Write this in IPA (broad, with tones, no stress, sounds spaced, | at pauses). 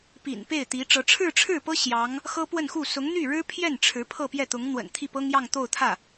p ḭ˨˩ n p e˥˩ ɪ̯ t̪ i˧˥ ʈ͡ʂ ɤ˧˥ ʈ͡ʂʰ ɻ̩˥˧ ʈ͡ʂʰ ɻ̩˥˩ p ɤ˥ ɕ j ɑ˧˥ ŋ | x ɤ˥ p w ə˥˧ n x u˥˩ s ʊ˧˥ ŋ n̪ y˥˩ ɻ ɻ̩˥ pʰ j ɛ˥˩ n ʈ͡ʂʰ ɻ̩˧˥ pʰ ɤ˥˧ p j ɛ˥˩ t̪ ʊ˧˥ ŋ n̪ w ə̰˨˩ n t̪ʰ i˥˩ p ɤ˥ ŋ j ɑ˥˧ ŋ t̪ o˥˧ ʊ̯ t̪ʰ ä˥˩